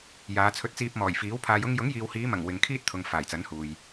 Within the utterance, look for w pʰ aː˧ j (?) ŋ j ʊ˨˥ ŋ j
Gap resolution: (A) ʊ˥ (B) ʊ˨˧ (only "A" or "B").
A